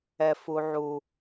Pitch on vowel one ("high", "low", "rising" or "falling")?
low